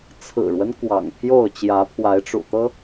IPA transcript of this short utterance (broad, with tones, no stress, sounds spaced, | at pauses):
t͡sʰ ɹ̩˨˩ ɻ w ə˦ n k w ɑ̰˨˩ ŋ pʰ j o˥˨ ʊ̯ t͡ɕ j ä˨˦ pʰ w a˨˦ ɪ̯ ʈ͡ʂ ṵ˨˩ t̪ ɤ˦